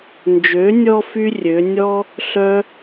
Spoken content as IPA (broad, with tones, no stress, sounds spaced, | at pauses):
n d͡ʒ ø˨˦ nʲ ɔ˧ f y˦ rʲ ø˨˦ nʲ ɔ˦ | ɬ œ˦